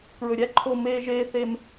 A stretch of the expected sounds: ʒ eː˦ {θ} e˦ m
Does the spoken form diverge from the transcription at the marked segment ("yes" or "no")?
no